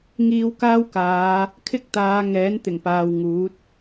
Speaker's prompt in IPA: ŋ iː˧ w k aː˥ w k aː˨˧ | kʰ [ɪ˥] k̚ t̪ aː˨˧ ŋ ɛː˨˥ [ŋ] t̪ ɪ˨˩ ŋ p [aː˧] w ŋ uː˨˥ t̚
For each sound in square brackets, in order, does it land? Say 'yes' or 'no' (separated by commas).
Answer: yes, no, no